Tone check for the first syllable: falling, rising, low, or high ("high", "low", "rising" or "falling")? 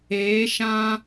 rising